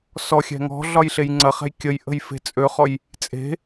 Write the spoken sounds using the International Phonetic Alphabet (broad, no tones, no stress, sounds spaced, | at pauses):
s ɔ xʲ ɛ̤ ŋ ɔ̤ ɮ ɒ j ɬ e j ŋ͡ǀ ɐ χ ɛ̤ j kʲ ə j ʔ ə̤ j f e̤ t͡sʼ ø χ ɔ j | t͡sʼ e̤